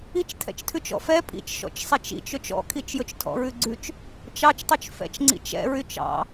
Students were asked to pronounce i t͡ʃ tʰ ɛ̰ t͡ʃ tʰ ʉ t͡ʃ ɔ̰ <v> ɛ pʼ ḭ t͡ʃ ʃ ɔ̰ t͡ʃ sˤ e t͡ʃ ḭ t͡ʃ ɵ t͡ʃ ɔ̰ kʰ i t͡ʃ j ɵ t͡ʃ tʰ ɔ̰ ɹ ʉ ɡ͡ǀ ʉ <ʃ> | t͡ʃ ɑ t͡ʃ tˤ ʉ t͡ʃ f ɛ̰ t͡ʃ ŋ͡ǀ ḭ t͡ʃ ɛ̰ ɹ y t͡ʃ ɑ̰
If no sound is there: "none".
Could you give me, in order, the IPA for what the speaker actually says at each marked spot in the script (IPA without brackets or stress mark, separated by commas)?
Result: f, t͡ʃ